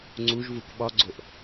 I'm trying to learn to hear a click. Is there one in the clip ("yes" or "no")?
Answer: yes